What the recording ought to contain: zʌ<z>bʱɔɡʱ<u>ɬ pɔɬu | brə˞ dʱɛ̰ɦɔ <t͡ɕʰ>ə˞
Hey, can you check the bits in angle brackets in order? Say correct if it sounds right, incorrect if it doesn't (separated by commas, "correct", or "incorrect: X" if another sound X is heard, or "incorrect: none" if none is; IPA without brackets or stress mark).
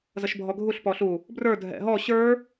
incorrect: ʃ, correct, incorrect: ɕ